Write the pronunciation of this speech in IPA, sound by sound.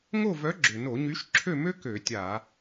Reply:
ŋ o˥˨ v œ˨˥ ɡ͡ǁ ʏ˩ n o˧˩˧ ɲ y˨˥ ʃ ǁʰ ø˥˨ m ø˥ k ø˧˩˧ tʲ a˧˩˧

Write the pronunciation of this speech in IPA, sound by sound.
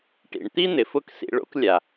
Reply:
ʈ ḭ˨ ɳ t̪ i˦ n̪ ɪ˨ f ʊ˦˨ k s ḭ˧ ɭ o̰˦ k lʲ a˨

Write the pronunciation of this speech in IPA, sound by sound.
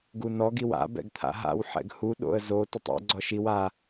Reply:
ɡ u n ɔ ɡ i w a̰ b ɛ̰ ɡ t̪ʰ a̰ ɦ a̰ w ħ ɛ̰ ɡ h u ɗ o̰ ə̯ z o t ʊ tˤ ɛ̰ ɡ͡ǀ ɔ ʃ i w a

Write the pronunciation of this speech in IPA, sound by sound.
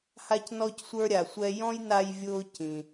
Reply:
h a˦ c n ɔ˦ c sʷ ə˞˦ ɾʲ a˨ sʷ ɛ˦ j ɔ̃˥ j n a˦ j vʲ ʊː˦ c ĩ˨

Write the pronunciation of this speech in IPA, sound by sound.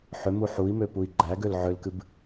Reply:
ħ ʏ m u ħ u i̯ m ø p u i̯ ɡ͡ǃ æ ɡ ø l ʕ ʏ l k ɨ b

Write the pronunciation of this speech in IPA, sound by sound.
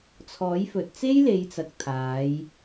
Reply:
t͡sʰ ɔː˨˥ j f ɵ˨ t̚ t͡s e˥ j l e˨˧ j t͡s ɐ˨ k̚ t̪ʰ aː˨˧ j

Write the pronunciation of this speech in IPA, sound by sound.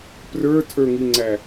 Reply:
p r ə˞ tʰ ə˞ ŋ i ŋ͡ǀ æ

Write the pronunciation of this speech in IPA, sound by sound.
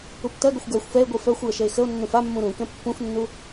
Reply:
u p t ɜ ɡ ʊ xʷ ɡ ɜ xʷ f ɛ e̯ ɡʷ i f œ xʷ j ə ʃ ə e̯ x ə o̯ nː ũ f a mː ũ ɾ ũ k ɛ̃ pː ũ f nː u

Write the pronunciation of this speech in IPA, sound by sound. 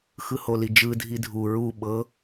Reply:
x ɯ h o l i d͡ʒ ɯ dʱ i dʱ u ɹ u ɓ ɤ

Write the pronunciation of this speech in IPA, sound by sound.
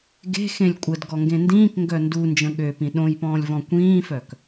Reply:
ɡ e̤ x ẽ lʲ kʷʼ ə d ɡ ɔ ŋ ɡ ẽ n d ĩː k ŋ ɡ œ n d u n d͡ʒ ə̃ ɠ ø p ĩ ɗ õ j p ɔ̃ː lʲ v ɔ̃ kʷ ĩː f œ k

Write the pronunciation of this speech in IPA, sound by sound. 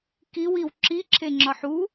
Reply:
k i w i w ǁ i ǁʰ e ŋ͡ǁ ɒ ħ u

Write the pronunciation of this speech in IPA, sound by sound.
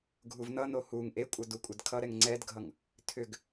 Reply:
ɡʱ u v n ʌ n o h u ŋ ʔ e kʷʼ ʌ d u kʷʼ ɛ d kʰ ʌ ɾ ɛ ŋ ŋ͡ǀ ɛ d ɡʱ ʌ ŋ | tʰ ʏ ɡ

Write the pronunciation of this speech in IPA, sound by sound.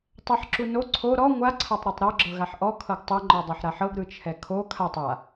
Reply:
tˤ ɛ ħ ǁ u n o ǀʰ o ɾ ɔ ŋʷ a ǀʰ a tˤ ɾ ɤ tˤ ɾ ɔ ɡ͡ǁ ɤ ɣ a ħ ʔ ɔ kʰ ɤ ɡ tˤ ɤ ŋ͡ǃ ɔ dˤ a ħ ɾ a ħ ɤ ɡ ɾ ɯ t͡ʃʰ ɛ kʰ o kʰ a tˤ a

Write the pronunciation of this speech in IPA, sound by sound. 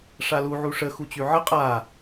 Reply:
ʂ a l u ʕ u ʂ ə x u t͡ɕ y ʕ ə qʼ a

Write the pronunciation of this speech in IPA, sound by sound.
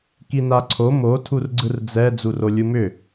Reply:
k i n a ǀʰ o m o tʰ u r ɡ͡ǀ ɯ r d͡z ɛ d͡z u r o lʲ u m ʏ

